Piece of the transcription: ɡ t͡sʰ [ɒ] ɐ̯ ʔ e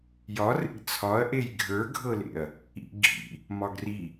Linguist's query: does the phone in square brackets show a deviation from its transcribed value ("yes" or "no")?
no